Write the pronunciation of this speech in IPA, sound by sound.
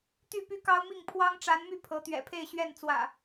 t̪ y˥˨ p y˦ k ɑ˦ ʊ̯ m i˥˨ ŋ pʰ w ɑ˦ ŋ ʈ͡ʂ a˨˦ n m y˥˨ pʰ ɤ˨˦ t̪ ɥ ɛ̰˨˩ pʰ e˥˨ ɪ̯ ɕ ɥ ɛ˥˨ n t͡s w ä̰˨˩

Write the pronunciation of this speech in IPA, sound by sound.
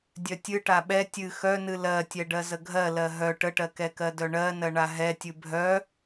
dʲ œ tʲ ɨ ʈ a ɓ ɛ tʲ ɨ x œ n ɨ l ɜ tʲ ɛ ɖ ɜ z ə ɡʱ ɜ l ɜ ɦ œ ʈ ə ʈ ɜ k ɛ k ɜ d œ ɳ ɜ n ɜ ɳ a ɦ ɛ tʲ ɨ bʱ œ

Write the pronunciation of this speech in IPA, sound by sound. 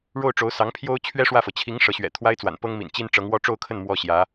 ɻ o˥˩ ʊ̯ ʈ͡ʂ o˧˥ ʊ̯ s ɑ˧˥ ŋ pʰ j o˥ ʊ̯ t͡ɕʰ ɥ ɛ˥ ʂ w ä˥˩ f ɤ˩ t͡ɕʰ i˧˥ ŋ ʂ ɤ˧˥ ɕ ɥ ɛ̰˨˩ t̪ʰ w a˥ ɪ̯ t͡s w a̰˨˩ n p ɤ˥ ŋ m ḭ˨˩ n t͡ɕ i˥ n ʈ͡ʂ ɤ˧˥ ŋ w ɔ˥˧ ʈ͡ʂ o˥˧ ʊ̯ kʰ ə˥˩ n m w ɔ˥ ɕ j ä˧˥

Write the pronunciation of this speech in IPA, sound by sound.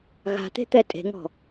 ɣ a̤ t̪ e̤ t̪ ɛ tʼ e̤ ŋ ɔ̤

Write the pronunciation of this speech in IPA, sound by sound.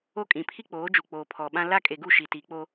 o˦ kʼ ĩ˨ pʰ i˦ k͡p oː˨˦ d͡ʒ u˨ k͡p oː˨ pʰ ɔ˨ ɓ ã˦ l a˦ kʼ e˨ ɡ u˦˨ ʃ i˨ t i˨˦ k͡p o˦

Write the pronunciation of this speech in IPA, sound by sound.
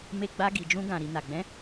m e˧ ɡ͡b a˧ ɡ i˨ d͡ʒ ũ˧ ɡ ã˨ ɾ i˨ n a˨ ɡ͡b ɛ̃˨˦

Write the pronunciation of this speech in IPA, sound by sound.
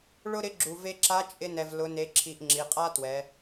ɭ ʊ˥ ɾ ɪ˧˥ ɡ͡ǁ u˩ v e˧ ǁ a˧˥ t͡ʃʼ ɪ˧ n ɛ˩ v l ʊ˩˧ n e˩˧ ǁʰ i˩ ʔ ŋ͡ǁ i˩˧ qʼ a˥ t w ɛ˩˧

